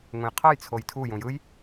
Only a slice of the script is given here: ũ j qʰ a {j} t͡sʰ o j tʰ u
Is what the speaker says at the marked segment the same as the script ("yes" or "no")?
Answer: yes